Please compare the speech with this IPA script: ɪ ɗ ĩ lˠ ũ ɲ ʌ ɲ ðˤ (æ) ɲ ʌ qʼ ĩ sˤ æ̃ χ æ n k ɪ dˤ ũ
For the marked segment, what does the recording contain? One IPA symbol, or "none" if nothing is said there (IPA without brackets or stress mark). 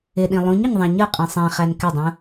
æ̃